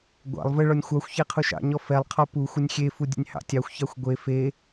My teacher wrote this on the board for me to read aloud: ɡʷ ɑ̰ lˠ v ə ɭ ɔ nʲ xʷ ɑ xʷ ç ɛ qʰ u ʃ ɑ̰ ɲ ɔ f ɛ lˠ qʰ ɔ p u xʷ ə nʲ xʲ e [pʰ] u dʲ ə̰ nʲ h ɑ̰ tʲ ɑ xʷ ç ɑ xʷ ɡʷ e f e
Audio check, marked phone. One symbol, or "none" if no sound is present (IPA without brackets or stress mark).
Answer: f